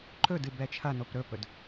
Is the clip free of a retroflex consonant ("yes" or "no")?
yes